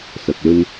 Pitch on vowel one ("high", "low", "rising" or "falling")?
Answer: low